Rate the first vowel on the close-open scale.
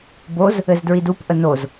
mid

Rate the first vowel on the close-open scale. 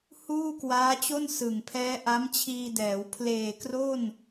close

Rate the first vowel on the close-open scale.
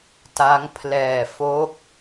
open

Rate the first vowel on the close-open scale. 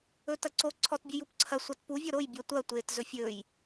mid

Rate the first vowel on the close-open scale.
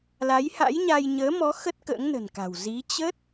open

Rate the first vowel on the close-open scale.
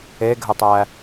mid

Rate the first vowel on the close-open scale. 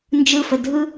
close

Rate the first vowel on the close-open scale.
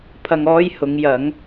open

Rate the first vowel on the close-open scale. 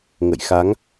mid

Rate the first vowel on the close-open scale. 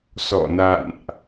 mid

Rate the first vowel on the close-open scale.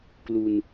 close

